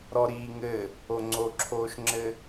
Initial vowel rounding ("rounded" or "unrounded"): rounded